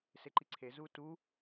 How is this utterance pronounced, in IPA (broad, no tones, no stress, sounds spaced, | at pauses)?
s e ǃ i ǀʰ e z u t u